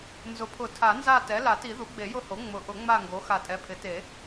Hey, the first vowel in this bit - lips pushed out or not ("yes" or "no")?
yes